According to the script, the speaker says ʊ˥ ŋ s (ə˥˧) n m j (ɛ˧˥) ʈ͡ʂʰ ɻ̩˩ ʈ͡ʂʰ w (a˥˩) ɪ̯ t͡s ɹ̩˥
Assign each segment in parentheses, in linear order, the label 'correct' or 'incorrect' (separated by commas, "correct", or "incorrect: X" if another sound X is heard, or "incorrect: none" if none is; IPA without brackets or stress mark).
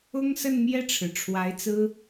correct, incorrect: ɛ˥˩, incorrect: a˧˥